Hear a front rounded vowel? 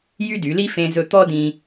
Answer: yes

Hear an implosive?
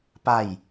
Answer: no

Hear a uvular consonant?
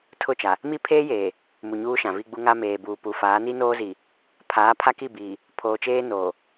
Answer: no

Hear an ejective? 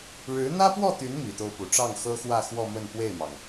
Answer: no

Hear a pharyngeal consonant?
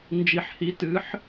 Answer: yes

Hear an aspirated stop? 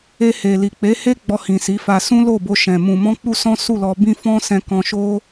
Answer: no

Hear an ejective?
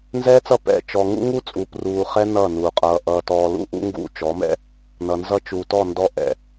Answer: yes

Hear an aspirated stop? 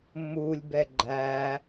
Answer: no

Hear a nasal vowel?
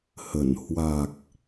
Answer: no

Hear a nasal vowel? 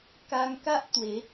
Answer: no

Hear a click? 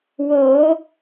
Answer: no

